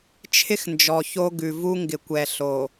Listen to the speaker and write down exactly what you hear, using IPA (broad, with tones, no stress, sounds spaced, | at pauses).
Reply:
t͡ʃʰ ɪ˦ x n d͡ʒ ɔ˨ ç o˦ ɡ ʉ˨ v u˦ ŋ ɡ ɪ˨ kʷ ɛ˨ ɬ o˨